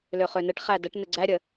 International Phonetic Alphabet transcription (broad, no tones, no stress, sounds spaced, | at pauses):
l ø χ ø n ɘ ʈ χ æ d ə ʈ n ɘ ɡ͡ǀ æ ɾʲ ə